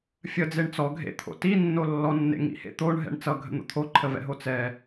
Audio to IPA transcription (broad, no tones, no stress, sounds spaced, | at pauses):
fʲ ə d͡z e ɳ t͡s ɔ ɡʱ ḛ t̪ʰ o̰ t i nː o lː ɔ nː ḛ ŋ ḭ h ḛ t̪ o ɳ ɦ ɛ̰ ɳ t͡s ʌ ɡʱ ə̰ n̪ o̰ t̪ʰ o ǃʰ ə v ɛ̰ ɦ o t͡s ɛ